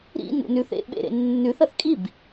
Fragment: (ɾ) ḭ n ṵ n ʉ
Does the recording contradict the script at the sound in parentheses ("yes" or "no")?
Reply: no